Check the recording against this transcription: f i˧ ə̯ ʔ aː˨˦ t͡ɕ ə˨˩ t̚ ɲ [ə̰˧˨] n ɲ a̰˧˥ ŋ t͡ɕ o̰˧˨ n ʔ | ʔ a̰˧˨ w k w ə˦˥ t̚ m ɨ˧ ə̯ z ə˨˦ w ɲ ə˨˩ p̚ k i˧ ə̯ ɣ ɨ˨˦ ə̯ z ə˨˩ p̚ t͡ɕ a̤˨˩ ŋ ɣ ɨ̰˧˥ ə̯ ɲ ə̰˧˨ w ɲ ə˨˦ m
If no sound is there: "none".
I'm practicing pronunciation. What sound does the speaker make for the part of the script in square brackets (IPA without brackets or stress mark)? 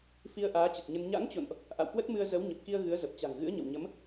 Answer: ə˧